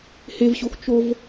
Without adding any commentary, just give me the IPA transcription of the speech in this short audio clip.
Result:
h e v ɕ o x t͡ʃ o v

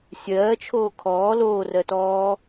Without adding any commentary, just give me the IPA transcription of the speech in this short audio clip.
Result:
sʲ ɜː t͡ʃʰ oː kʰ ɔː l oː r ɜ t ɔː

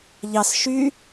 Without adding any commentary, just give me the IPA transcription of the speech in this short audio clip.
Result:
ʎ ɑ s ʃ y

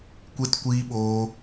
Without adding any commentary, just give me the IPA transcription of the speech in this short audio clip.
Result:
kʷ e˦ t kʷ iː˦ ɓ oː˦

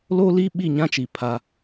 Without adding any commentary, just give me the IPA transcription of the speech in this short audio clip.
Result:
l oː˦ l iː˦ ɓ i˦˨ ɲ ã˦ t͡ʃ i˨ pʰ a˦

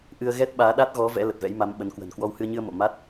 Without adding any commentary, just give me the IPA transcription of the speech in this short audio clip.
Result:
ʔ ɨ˧ ə̯ ɣ ɛ˦˥ t̚ ɓ aː˨˦ ɗ a˦˥ t̚ ɣ ɔ˨˦ v ɛ̰˧˥ l ə˨˩ t̚ v ɛ̰˧˥ j m a˨˦ m ɓ ə˨˦ n k w ə̤˨˩ n k w ɔ˧ w h ɨ˧ ə̯ ɲ ɨ˧ ə̯ m o̰˧˨ m a˦˥ t̚

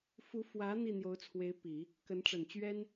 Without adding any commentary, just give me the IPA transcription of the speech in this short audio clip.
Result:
f u˧˥ f w ä˧˥ n̪ i˥˩ n̪ j o˧˥ ʊ̯ t͡sʰ w e˧˥ ɪ̯ p i˨˩˦ | k ə˧˥ n ʈ͡ʂ ə˨˩ n t͡ɕ ɥ ɛ˥ n

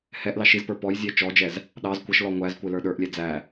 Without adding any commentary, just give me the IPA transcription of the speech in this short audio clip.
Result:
h ɛ ʔ l ɑ ʃ i z p ə˞ p ɔ j zʲ ɛ t͡ʃ ɔ d͡ʒ ɛ z | ɗ ɑ z kʷ ʌ ʃ l ɔ ŋʷ æ z kʷ ɪ l ə˞ ɗ ə˞ ʔ lʲ ɛ d͡z æ

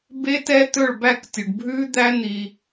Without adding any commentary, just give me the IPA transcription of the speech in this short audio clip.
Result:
b e˦ t ɛ˦ t̪ ɵ˦˨ ɭ b æ˦˨ k tʲ u˨ ɖ bʱ ʉ˦ d̪ æ˦ n̪ i˧

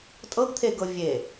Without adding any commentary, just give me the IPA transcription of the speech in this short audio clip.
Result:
tʼ ɤ ɡ t̪ʰ e ɡ ɤ vʲ e

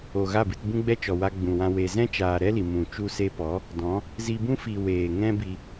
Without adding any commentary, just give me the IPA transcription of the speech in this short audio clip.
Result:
o˨ ɣ a˦˨ b ɨ˧ t b ũ˦ ɡ͡b ɛ˦ t͡ʃ ɔ˨ w a˧ ɡ͡b ũ˨ w ã˧ w e˨ z ɛ̃˦ t͡ʃ aː˨ ɾ ɛ˦ l i˨ m ũ˨ t͡ʃ u˧ s e˧ p ɔ˨˦ | d ɔ̃˨˦ | z i˧ b ũ˦ f i˨ w eː˨ ŋ ɛ̃˦ b i˧

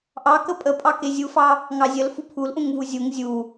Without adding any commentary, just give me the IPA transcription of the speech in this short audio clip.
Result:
ʔ ɑ k ə pʼ ə pʼ ɑ k e zʲ u f ɑ | ŋ ɑ zʲ ə l f u pʰ u l ʔ ũ ŋ v u zʲ u ŋ zʲ u

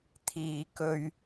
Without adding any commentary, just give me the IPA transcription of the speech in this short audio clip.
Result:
t̪ʰ iː˨ k ɵ˧ ɥ

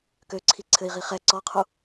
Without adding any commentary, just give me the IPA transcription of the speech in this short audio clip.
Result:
k ø ǀʰ i ǀʰ ɘ i̯ ʁ i χ ɛ ǀ ɔ qʰ u

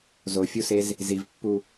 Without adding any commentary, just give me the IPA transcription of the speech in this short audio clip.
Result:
z o fʲ u s e z | z i v pː u

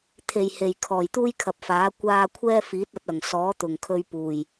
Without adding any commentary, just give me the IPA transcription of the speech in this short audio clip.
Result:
t̪ʰ e˨˩ j h e˨˩ j kʰ ɔː˨˩ j t̪ uː˥ j kʰ ɐ˨ p̚ f aː˨˥ kʷ aː˧ kʷʰ ɛː˥ f iː˨˥ t̚ ɐ˨˥ t̚ ɐ˨˩ ŋ s ɔː˨˥ t̪ ʊ˨˩ ŋ kʰ ɵ˧ ɥ p uː˨˩ j

